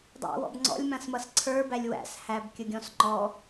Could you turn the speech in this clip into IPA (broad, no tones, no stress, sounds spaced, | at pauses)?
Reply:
dˤ æ̰ w ɔ̰ b ŋ͡ǀ ɔ̰ lʲ m ã s m ʌ s ǀʰ ə˞ b æ lʲ w æ̰ s h æ b kʲ ə ɡʲ ɔ̃ s ŋ͡ǃ ɔ